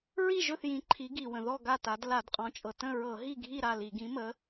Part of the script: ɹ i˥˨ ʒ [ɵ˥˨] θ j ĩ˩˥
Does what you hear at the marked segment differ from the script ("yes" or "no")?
no